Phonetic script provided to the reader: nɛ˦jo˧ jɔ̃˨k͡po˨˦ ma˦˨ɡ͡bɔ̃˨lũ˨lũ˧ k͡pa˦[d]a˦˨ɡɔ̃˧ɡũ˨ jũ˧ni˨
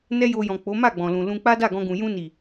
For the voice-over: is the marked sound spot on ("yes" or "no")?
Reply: yes